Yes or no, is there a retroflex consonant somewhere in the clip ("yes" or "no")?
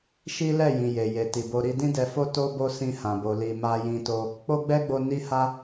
no